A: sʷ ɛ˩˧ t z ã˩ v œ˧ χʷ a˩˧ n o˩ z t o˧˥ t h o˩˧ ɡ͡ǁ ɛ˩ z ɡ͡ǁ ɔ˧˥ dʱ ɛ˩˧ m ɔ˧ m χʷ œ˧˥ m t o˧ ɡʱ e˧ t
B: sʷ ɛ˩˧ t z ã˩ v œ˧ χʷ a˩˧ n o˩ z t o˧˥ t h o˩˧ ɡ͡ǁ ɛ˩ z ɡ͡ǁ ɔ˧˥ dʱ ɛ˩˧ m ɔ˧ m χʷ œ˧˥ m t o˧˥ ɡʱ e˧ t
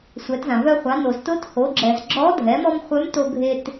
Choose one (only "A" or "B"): A